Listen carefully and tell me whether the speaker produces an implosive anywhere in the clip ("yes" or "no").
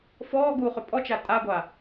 no